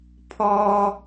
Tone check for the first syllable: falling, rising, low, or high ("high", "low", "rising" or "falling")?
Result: high